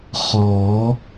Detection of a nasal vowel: absent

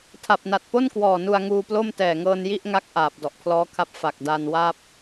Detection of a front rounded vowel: absent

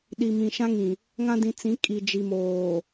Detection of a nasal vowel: present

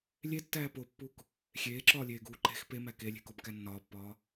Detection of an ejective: absent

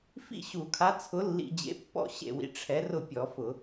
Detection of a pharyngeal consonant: absent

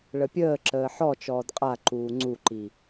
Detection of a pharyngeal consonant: present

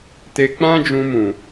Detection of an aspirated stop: absent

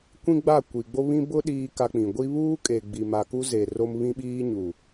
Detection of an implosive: present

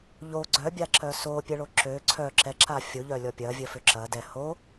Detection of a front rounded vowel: present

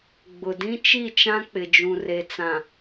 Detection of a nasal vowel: present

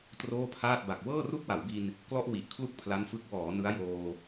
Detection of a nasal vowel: absent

